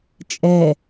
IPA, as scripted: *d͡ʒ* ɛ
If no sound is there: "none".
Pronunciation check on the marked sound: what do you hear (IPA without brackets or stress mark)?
t͡ʃʼ